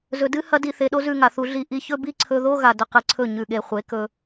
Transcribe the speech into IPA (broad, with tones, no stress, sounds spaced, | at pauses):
z ɵ˨ d ɨ˦ h ɐ˦ d i˧ θ e˧ ɗ o˦ z ʉ˧ ŋ a˨ θ u˧ ɮ i˧ ʔ i˧ ç ɵ˦ b i˦ ǀʰ ɵ˧ ð o˦ ɣ a˨ d ɵ˨ q ɨ˨ ǀʰ ɵ˦˨ ɲ ʉ˨ ɠ e˨ χʷ e˨˦ k ɵ˧